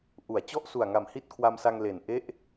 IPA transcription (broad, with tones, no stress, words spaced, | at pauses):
ʔu˩˦a̯t͡ɕɔ˥˩ʔsu˨˩a̯ ŋa˨˩mhi˥˩t̚kʰwa˧msa˧ŋ le˨˩nʔe˥˩ʔ